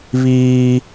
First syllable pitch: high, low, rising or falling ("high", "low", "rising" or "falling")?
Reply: high